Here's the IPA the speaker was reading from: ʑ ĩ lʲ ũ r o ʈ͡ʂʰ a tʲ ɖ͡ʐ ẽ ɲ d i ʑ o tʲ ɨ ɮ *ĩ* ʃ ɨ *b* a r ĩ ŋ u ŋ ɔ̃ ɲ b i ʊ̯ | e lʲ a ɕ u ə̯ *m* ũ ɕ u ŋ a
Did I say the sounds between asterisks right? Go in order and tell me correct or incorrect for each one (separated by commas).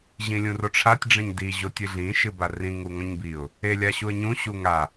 correct, correct, incorrect